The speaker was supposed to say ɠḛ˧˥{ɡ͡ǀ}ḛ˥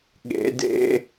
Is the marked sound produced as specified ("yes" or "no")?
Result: no